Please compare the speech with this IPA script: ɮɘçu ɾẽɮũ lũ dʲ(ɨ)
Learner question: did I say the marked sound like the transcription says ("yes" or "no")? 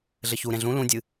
yes